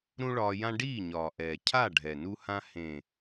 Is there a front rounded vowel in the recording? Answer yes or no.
no